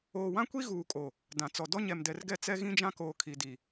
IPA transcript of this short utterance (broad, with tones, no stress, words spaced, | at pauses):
oː˨wã˦kʷi˦ ɣuː˨kʼo˨ | dã˨t͡sɔ˨ dɔ˦ɲɛ˨mdɛ˨rɡɛ˦˨ t͡sɛ˦ɣĩ˦d͡ʒã˦koː˨ kʰi˨di˨